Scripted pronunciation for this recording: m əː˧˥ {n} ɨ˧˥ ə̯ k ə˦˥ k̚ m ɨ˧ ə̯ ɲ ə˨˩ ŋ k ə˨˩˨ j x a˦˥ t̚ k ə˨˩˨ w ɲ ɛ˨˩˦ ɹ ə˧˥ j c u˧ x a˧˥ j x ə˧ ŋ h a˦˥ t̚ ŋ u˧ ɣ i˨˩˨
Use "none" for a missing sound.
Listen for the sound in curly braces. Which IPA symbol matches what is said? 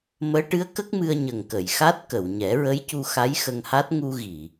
ʈ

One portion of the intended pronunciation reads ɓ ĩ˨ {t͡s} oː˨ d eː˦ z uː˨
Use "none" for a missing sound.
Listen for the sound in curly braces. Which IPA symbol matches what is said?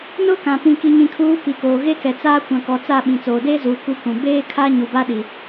t͡s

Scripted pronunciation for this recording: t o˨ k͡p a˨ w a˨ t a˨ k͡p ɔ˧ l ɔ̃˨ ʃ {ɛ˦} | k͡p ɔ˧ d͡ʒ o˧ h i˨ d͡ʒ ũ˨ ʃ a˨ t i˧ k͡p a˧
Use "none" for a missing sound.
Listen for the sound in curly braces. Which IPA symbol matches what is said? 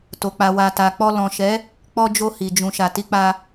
ɛ˨˦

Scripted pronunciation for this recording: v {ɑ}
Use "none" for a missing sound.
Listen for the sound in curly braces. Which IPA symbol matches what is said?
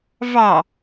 ɑ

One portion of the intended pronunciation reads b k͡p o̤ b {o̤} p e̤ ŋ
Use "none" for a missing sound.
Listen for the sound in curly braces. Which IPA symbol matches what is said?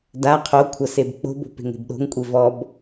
o̤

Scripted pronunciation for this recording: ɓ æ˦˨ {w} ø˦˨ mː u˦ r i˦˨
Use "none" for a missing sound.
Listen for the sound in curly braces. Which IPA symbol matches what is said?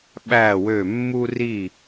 w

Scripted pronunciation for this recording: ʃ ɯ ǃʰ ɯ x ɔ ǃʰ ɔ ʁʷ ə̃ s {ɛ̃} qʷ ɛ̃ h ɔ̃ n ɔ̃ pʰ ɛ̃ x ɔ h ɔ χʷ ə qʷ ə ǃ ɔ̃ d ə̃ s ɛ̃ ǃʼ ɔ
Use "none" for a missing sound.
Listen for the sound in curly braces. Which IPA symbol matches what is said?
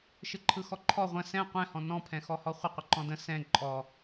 ɛ̃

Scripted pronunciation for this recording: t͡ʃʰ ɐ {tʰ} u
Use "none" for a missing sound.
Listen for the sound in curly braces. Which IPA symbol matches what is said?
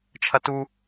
t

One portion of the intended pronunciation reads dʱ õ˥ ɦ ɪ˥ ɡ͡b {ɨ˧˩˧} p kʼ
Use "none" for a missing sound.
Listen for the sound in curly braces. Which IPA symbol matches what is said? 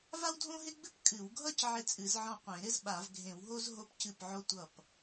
ɨ˥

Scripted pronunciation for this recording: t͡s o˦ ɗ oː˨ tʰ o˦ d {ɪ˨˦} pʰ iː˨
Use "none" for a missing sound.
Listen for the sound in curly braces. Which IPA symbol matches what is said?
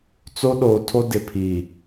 ɪ˨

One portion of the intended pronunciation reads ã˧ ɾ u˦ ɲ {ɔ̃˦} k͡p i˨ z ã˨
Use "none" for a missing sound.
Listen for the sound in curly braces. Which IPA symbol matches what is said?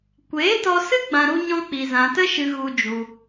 ɔ̃˦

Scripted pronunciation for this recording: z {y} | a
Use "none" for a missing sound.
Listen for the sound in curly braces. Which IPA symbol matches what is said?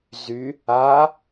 y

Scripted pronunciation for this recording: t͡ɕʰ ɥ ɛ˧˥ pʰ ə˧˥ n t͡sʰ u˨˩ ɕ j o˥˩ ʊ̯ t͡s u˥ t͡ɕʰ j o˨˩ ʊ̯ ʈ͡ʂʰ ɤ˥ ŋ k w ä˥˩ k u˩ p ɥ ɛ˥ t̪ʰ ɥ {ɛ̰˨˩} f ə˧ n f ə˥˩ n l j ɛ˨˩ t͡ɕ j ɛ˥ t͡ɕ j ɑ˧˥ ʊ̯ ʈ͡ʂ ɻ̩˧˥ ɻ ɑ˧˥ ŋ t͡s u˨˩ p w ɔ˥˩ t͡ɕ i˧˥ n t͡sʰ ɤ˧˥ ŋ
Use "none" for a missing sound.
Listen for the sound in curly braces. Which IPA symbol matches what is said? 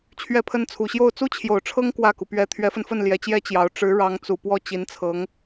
ɛ˧˥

